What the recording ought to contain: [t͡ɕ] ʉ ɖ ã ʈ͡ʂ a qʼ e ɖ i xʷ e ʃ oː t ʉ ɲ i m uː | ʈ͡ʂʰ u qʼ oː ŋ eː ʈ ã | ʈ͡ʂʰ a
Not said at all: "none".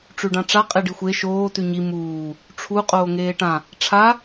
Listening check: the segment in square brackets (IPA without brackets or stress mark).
ʈ͡ʂ